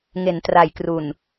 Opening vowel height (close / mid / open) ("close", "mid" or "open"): mid